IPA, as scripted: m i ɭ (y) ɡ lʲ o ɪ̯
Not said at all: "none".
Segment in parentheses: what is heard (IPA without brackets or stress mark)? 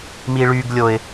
y